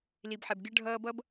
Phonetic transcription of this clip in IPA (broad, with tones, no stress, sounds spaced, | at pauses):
l i˨ b ħ ɛ˨ b ɡʲ ʌ˦ ɖʱ ʌː˦ b ʌ˦ b